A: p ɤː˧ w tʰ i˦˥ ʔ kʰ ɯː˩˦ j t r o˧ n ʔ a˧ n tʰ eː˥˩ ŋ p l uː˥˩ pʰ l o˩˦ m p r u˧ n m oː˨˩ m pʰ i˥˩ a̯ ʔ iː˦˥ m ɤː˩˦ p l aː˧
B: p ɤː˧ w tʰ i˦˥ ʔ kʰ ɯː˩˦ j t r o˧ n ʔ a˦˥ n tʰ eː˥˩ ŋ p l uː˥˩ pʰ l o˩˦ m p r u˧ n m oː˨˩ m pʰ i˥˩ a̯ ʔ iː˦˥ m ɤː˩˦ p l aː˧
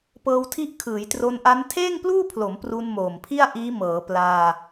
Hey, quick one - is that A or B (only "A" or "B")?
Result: B